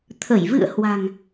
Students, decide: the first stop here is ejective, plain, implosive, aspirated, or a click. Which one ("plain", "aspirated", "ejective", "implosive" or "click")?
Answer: aspirated